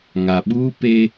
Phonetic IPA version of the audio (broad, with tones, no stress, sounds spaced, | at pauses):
ŋ a˨ ɓ uː˦ p e˦